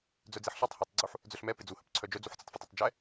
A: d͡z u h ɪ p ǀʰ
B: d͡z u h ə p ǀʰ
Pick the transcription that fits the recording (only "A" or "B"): B